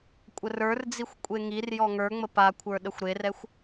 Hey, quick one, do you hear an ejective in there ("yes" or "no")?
yes